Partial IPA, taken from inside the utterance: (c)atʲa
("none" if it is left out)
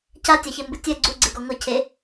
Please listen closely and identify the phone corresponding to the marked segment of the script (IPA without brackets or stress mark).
c